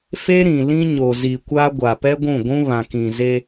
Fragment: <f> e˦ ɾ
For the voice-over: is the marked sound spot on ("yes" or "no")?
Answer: yes